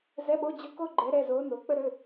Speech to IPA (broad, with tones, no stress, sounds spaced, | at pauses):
z ɛ˧˥˧ ɓ o˧˥˧ d͡ʑ ø˥ k o˥ ɡ͡ǃ ɛ˧˥ ɾ ɛ˧˥˧ z o˧˥ n o˧˥ k͡p ə˥ ɾ ø˧˥˧